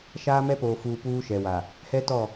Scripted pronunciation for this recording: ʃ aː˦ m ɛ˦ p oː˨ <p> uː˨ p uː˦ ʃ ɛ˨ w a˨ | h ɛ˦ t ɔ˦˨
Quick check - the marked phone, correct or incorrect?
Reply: incorrect